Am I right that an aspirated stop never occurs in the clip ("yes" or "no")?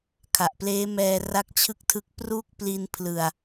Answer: no